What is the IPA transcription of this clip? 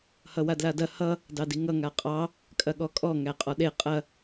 hʌwadladɐ hʌ | dɑdiŋʌ ŋaqʼɑ | kʼɐɠɔkʼɔ ŋæqʼɔɗe qʼɐ

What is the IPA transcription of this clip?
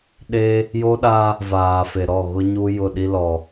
ɗe˦ | jo˦ɗa˦ | vaː˨fe˨ɾɔ˦˨ ɣʊ˦ɲu˦ jʊ˦˨ɗi˦ lɔ˨

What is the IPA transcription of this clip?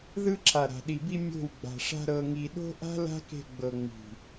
ðɯ˧ǁʰa˨ ɾa̤˨ɗi˨bi˧ mʲo̤˦˨w ɡ͡ba̤˨ʂa̤˧ ɾɤ˨ŋi˨ ɗo̤˦ʔa̤˦ la̤˦ke̤˧ɡ͡bɤ˨ ŋ͡mi̤˨

